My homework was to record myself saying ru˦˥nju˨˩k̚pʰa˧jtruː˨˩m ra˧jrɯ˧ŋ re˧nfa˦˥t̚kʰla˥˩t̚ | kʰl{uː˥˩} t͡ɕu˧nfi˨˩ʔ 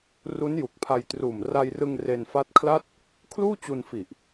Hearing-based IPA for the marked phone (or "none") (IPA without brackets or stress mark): uː˥˩